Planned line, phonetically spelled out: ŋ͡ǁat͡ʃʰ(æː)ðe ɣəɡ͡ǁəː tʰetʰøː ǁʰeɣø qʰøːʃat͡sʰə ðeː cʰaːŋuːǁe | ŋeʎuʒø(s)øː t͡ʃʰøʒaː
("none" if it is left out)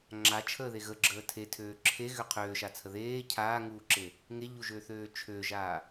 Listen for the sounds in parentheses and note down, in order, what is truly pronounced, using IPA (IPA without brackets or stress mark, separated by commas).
əː, θ